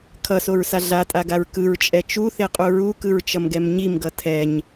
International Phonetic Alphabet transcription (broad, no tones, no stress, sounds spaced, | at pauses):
kʰ ʌ s o ɹ s a ɮ a tʼ a ɡ a ɹ k ɯ ɹ t͡ʃʼ ɛ t͡ʃ u θ e qʼ u ɹ u k ɯ ɹ t͡ʃ ʌ m ɡ ɛ m ɲ i m ɡ ʌ tʰ ɛ ɲ